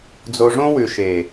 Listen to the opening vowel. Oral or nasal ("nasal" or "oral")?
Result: oral